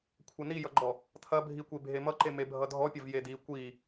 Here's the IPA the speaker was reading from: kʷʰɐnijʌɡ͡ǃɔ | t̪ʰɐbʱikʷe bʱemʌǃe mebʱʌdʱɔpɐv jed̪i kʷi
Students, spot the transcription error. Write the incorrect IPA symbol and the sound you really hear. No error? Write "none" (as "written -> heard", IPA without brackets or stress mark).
p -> pʲ